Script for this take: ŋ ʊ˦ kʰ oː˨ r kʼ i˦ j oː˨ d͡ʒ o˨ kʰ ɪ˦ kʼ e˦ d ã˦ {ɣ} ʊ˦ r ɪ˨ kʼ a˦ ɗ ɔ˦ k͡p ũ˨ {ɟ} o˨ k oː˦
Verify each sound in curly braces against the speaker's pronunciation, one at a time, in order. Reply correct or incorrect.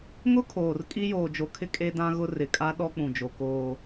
correct, incorrect

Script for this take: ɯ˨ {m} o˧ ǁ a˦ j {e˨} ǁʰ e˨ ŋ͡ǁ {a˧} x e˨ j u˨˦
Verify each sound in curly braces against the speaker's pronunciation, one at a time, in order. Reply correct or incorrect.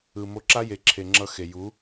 correct, correct, incorrect

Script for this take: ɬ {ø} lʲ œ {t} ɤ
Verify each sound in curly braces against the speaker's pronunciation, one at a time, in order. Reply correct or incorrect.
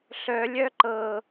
incorrect, incorrect

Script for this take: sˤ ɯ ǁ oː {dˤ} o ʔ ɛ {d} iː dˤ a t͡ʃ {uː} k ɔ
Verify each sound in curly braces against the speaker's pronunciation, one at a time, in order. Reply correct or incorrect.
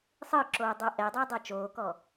correct, incorrect, incorrect

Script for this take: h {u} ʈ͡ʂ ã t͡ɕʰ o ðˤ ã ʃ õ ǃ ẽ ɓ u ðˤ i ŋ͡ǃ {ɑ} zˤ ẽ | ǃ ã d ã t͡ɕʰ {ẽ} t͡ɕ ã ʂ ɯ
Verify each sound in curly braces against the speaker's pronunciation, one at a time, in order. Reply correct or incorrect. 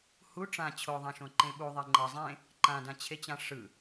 correct, incorrect, incorrect

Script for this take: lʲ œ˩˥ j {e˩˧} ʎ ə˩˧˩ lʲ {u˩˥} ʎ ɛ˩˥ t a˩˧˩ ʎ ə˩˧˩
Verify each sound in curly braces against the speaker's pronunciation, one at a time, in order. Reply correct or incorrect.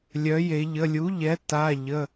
correct, correct

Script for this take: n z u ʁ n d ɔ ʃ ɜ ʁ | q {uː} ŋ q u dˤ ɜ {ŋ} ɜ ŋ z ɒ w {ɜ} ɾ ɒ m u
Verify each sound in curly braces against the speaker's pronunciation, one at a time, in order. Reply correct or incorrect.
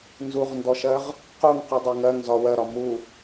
incorrect, correct, correct

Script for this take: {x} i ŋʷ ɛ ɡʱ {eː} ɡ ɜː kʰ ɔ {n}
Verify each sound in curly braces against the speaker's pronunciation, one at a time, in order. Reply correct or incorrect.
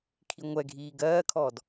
incorrect, incorrect, incorrect

